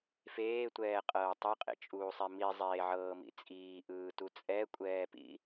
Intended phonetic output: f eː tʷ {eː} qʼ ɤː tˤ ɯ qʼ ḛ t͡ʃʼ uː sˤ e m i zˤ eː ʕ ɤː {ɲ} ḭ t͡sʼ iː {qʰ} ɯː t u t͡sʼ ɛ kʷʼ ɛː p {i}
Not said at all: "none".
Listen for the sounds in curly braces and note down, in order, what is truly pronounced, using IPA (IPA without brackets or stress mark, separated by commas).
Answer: ɛː, m, ʔ, ḭ